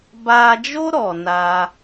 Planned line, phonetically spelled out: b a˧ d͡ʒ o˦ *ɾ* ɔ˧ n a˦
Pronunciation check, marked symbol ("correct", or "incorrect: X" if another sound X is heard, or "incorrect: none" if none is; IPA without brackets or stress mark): correct